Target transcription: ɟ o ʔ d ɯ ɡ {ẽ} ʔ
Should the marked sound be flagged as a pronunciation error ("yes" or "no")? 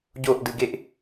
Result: yes